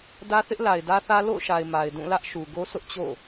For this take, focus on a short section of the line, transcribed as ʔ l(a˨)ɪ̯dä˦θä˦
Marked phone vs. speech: correct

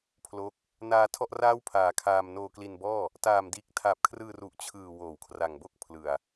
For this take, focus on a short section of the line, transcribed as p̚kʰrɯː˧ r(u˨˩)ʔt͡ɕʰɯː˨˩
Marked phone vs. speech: correct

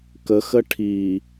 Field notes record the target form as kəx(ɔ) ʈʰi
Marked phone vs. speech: incorrect: ə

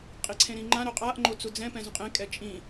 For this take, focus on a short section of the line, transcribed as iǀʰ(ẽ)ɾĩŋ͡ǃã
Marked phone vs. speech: correct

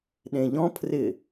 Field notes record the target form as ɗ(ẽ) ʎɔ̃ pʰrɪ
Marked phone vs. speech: correct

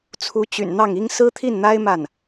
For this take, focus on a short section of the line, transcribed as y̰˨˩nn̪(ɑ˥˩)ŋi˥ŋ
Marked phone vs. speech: correct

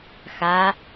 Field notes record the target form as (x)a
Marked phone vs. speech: correct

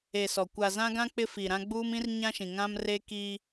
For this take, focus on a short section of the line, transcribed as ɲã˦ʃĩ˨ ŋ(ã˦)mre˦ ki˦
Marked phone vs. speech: correct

